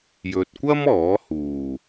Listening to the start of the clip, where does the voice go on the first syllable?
low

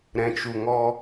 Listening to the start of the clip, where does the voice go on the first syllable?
low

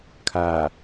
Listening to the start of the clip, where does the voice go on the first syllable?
low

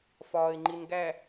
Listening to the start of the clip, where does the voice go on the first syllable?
low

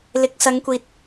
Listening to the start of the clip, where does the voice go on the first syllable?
rising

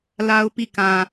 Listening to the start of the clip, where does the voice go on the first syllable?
high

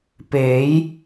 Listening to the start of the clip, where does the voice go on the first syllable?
rising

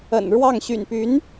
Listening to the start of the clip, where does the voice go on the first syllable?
low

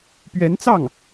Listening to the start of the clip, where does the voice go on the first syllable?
rising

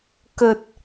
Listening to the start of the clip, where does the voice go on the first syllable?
low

